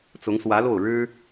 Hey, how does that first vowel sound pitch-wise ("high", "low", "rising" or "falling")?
rising